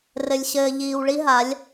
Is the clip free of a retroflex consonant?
no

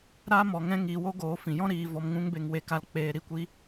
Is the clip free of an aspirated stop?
yes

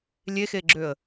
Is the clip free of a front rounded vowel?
no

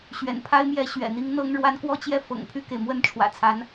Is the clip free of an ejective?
yes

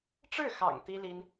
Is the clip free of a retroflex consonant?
no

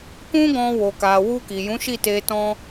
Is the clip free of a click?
yes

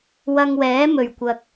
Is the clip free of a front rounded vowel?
yes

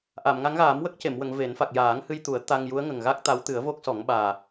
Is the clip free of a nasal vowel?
yes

